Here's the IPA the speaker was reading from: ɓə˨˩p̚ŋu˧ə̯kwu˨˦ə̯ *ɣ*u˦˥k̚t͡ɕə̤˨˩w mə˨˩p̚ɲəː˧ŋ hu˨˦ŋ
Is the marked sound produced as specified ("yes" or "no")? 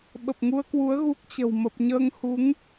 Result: yes